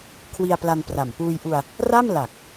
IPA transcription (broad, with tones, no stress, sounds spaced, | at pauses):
kʰ w i˧ a̯ p l a˧ n p r a˨˩ m p uː˧ j ʔ u˧ a̯ | r a˥˩ m l a˨˩ k̚